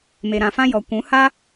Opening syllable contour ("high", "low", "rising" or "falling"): low